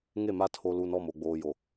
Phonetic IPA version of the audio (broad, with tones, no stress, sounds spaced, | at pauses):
ŋ e˦˨ m a˦ tʰ o˨ l uː˨ n ɔ˦˨ m o˨ ɡ͡b oː˨ j o˨